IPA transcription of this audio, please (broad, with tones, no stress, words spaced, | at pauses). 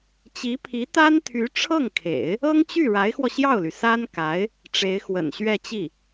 t͡ɕi˧˥pʰi˧˥t̪a˥nt̪ʰy˧˥ ʈ͡ʂʰɤ˥˩ŋkʰḛ˨˩˦ɪ̯ | ɤ˥ŋt͡ɕy˥˩ ɻa˧˥ɪ̯xwɔ˧ɕjɑ˥˩ʊ̯ly˩ sa˥nka˧˥ɪ̯ | ʈ͡ʂe˧˥ɪ̯xwə̰˨˩n ɕɥɛ˥˧t͡ɕi˥˩